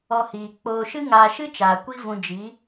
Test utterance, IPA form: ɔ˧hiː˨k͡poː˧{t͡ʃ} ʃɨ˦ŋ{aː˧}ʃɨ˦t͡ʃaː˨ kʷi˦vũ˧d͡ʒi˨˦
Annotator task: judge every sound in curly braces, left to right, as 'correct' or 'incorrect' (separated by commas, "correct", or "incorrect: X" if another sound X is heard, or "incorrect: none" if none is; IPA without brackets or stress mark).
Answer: incorrect: none, correct